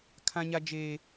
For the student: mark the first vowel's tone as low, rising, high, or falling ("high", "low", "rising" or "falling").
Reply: high